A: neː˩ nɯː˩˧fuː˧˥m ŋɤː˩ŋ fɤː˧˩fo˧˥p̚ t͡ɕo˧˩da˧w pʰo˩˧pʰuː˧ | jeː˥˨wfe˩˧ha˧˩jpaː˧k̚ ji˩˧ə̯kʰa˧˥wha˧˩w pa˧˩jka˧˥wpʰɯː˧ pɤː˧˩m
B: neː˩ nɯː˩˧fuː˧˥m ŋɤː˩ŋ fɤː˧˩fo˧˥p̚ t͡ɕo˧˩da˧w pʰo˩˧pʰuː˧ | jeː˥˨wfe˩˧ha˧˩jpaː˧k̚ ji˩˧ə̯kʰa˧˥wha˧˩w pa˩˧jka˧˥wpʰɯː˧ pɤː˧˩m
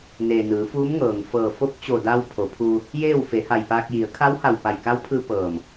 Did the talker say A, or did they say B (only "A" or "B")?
A